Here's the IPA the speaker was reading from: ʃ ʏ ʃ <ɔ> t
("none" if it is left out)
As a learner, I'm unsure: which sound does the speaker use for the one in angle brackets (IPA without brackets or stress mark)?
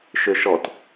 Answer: ɔ